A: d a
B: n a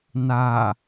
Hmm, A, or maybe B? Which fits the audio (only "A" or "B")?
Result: B